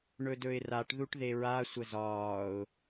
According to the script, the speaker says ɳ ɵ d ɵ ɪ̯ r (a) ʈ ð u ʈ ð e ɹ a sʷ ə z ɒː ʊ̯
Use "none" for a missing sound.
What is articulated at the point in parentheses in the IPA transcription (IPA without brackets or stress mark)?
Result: a